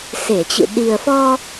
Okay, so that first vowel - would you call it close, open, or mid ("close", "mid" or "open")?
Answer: mid